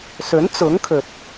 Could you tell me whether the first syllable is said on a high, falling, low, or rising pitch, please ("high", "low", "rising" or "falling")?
rising